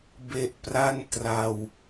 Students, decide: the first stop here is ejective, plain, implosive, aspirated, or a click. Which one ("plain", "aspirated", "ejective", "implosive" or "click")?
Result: plain